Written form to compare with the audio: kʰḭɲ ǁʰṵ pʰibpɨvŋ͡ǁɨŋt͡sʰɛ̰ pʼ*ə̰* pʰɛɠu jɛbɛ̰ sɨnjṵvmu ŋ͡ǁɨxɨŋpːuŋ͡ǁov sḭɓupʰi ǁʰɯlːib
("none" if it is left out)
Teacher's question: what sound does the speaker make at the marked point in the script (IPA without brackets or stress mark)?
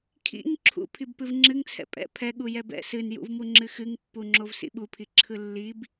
ɛ̰